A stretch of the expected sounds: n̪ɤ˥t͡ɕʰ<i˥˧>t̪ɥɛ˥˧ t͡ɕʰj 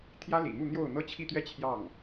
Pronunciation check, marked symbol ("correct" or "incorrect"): correct